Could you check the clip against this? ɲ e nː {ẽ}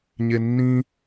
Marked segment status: incorrect: ĩ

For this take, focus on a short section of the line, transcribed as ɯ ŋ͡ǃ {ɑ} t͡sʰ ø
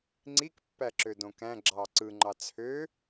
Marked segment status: correct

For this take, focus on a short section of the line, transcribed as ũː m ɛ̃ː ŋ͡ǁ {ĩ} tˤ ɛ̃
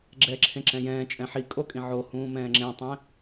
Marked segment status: incorrect: ẽ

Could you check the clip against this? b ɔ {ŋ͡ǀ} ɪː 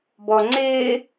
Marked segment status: correct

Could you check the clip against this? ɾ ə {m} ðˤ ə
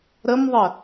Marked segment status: correct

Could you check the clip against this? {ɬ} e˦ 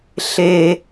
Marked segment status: correct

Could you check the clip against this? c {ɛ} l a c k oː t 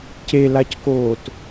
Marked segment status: incorrect: e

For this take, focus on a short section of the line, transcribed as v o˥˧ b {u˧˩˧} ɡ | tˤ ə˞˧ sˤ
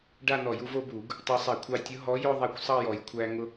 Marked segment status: correct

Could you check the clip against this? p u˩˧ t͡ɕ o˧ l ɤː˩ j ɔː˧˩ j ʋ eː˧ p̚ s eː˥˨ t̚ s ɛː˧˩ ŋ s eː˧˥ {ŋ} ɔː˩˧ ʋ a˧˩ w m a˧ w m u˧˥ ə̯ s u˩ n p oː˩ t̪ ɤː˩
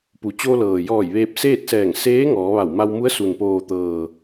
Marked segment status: correct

